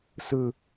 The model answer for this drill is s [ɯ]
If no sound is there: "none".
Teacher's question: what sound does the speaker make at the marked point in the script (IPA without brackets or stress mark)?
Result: ɯ